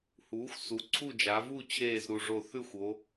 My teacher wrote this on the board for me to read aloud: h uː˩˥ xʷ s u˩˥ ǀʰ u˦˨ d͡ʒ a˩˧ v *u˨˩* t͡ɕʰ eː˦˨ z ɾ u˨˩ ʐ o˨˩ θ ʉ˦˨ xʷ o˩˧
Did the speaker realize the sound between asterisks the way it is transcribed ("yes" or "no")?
no